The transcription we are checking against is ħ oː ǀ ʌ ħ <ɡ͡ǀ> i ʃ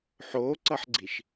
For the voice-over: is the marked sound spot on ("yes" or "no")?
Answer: yes